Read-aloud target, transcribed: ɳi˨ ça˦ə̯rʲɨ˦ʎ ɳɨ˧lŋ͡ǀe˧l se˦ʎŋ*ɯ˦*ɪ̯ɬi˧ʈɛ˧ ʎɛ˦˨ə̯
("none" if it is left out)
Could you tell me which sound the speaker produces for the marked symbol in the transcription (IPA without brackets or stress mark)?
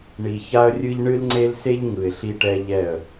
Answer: ɯ˨